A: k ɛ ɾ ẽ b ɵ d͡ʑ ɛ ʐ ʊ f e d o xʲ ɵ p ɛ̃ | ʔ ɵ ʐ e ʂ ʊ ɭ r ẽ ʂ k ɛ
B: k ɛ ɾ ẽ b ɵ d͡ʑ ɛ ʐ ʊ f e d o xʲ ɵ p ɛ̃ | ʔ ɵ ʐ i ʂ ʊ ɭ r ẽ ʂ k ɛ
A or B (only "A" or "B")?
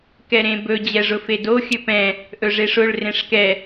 A